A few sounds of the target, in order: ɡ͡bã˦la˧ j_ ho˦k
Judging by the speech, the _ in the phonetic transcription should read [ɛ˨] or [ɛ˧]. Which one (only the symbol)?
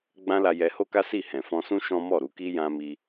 ɛ˧